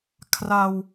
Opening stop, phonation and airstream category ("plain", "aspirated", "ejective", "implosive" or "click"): aspirated